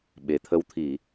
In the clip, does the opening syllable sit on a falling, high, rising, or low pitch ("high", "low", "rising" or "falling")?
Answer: low